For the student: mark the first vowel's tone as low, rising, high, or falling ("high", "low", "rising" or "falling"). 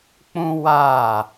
high